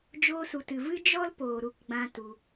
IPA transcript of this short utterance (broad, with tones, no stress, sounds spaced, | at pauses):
d͡ʒ oː˧ s u˨ t ɨ˨ v ɨ˦ d͡ʒ ɔ˦ l p oː˨ ɾ u˧ k ɡ͡b ã˧ t u˧